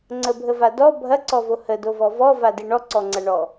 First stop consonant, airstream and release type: click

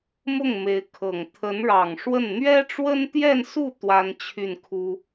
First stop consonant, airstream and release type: aspirated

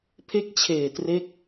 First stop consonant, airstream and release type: aspirated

